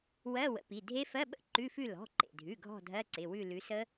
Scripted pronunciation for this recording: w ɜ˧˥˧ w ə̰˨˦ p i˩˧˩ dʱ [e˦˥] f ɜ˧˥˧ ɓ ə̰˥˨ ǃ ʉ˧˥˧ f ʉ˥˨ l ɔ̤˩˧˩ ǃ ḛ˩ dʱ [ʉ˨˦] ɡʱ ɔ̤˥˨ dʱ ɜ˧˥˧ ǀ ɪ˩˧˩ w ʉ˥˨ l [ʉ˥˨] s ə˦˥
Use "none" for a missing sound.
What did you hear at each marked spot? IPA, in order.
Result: e˦˥, ʉ˩˧˩, ʉ˨˦

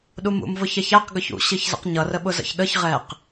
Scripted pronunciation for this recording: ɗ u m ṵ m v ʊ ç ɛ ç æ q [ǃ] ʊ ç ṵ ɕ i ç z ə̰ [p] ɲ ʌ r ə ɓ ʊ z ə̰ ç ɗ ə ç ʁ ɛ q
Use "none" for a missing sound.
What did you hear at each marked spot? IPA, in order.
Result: ɡ, q

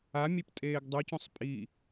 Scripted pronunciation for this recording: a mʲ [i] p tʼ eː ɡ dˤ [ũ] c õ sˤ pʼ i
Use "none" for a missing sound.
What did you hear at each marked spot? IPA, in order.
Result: e, u

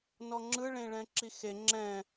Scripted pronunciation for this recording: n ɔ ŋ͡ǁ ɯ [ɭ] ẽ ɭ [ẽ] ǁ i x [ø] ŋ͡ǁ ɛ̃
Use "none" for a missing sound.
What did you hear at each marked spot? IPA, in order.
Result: ɭ, ɛ̃, e

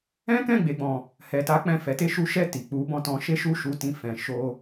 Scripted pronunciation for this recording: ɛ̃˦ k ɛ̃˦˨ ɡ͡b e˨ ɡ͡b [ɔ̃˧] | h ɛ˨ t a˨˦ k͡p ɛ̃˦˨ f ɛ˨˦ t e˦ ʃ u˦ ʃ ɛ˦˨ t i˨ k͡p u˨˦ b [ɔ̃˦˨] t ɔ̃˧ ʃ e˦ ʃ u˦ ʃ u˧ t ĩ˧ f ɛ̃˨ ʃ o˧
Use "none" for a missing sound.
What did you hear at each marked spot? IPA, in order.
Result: ɔ̃˨, ɔ̃˦˨

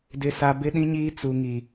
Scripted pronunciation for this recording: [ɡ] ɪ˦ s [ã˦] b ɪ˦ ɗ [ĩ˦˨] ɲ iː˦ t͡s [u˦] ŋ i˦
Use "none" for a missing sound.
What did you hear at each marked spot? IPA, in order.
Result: d, a˦, ĩ˦, u˦

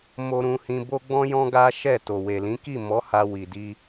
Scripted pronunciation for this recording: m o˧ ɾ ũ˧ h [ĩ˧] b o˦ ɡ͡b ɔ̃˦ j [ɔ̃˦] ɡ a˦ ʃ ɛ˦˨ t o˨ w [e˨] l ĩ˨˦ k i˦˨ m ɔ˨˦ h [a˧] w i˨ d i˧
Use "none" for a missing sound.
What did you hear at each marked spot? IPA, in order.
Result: ĩ˧, ɔ̃˦, e˨, a˧

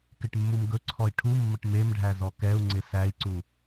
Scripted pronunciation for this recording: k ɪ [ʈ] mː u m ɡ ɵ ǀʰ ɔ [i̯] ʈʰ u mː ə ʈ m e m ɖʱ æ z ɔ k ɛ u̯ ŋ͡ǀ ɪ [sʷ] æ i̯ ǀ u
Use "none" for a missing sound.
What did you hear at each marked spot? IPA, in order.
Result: ʈ, i̯, s

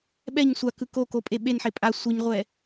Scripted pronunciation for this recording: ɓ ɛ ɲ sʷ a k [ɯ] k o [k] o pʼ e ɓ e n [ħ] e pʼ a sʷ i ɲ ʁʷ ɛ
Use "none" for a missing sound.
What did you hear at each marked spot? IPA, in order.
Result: ɯ, k, ħ

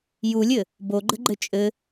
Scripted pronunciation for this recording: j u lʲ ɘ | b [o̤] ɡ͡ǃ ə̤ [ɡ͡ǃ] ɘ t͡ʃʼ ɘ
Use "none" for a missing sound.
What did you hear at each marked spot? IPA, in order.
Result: o, ɡ͡ǃ

